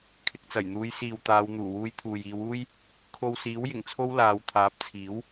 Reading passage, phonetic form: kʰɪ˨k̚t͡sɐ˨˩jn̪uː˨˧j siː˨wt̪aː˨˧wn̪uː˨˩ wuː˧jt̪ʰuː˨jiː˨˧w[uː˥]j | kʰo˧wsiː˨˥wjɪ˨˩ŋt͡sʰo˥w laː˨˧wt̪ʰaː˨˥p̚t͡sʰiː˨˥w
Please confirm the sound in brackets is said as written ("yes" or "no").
yes